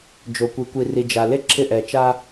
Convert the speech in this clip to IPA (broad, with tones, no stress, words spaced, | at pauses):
d͡ʒo˨kʷi˨kʷi˨ ri˨d͡ʒa˨ le˦ǁʰɪ˦˨ ʔɛ˨t͡ʃa˦